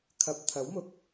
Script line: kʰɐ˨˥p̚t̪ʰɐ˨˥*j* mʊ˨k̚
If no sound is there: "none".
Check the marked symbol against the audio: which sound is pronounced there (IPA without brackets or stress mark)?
w